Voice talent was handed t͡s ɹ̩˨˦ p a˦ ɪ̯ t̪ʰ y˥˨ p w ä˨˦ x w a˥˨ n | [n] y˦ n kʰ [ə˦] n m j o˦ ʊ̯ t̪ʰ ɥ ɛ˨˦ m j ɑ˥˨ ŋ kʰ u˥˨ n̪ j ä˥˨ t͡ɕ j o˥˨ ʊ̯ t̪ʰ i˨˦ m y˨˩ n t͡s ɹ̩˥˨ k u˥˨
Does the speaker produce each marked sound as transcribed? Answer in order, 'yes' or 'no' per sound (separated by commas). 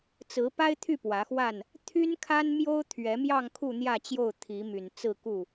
no, no